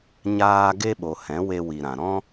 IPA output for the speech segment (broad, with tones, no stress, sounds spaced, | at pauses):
ɲ aː˧ ɡ e˦ ɓ o˨ h ɛ̃˨˦ w e˧ w i˨ ɾ ã˨ ɾ ɔ̃˦